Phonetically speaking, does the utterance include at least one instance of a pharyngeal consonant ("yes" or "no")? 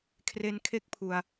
no